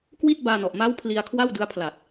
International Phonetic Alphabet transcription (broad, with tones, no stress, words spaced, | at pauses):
kwi˥˩t̚baː˧nɔ˨˩ʔ ma˦˥w pʰli˧a̯kʰwa˥˩wdɯ˦˥a̯ pʰla˨˩t̚